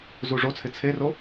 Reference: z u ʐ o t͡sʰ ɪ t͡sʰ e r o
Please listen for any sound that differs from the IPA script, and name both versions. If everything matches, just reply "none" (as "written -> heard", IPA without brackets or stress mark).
none